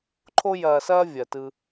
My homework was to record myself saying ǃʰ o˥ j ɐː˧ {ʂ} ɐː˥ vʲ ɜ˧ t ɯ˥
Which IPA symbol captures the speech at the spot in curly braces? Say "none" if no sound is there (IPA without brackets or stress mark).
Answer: s